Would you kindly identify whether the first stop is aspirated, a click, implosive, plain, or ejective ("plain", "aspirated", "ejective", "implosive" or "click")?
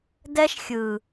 plain